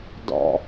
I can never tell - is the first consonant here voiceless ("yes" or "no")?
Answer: no